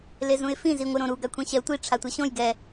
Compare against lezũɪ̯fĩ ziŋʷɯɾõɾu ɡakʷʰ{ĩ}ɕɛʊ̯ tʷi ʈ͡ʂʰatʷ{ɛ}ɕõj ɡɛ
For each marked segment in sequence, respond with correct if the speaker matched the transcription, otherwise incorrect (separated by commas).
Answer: incorrect, correct